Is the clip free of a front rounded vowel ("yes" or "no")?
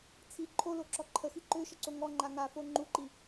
no